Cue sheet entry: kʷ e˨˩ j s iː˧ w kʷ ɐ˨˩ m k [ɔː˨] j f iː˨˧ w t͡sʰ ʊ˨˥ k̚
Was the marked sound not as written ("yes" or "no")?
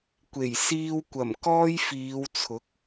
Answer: yes